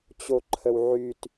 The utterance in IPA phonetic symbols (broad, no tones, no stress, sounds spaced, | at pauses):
t͡ɕ o ǃʰ ə w ʕ y t